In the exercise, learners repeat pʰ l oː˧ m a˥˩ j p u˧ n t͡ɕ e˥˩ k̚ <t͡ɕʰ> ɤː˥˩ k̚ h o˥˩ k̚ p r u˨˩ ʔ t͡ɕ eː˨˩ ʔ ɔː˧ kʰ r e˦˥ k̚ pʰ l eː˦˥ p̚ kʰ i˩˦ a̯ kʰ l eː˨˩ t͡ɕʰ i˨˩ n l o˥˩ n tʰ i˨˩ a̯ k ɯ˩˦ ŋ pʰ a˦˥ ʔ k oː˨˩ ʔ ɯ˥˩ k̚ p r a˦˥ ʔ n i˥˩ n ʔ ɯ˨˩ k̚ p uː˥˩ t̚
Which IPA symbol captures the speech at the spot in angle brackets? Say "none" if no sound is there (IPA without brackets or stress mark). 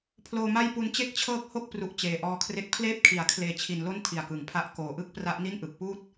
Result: t͡ɕʰ